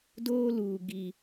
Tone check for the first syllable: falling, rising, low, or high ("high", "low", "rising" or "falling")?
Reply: high